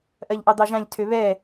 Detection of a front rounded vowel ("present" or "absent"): present